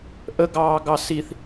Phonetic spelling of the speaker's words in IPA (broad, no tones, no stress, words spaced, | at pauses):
ʔəɡɑːɡɑ siθ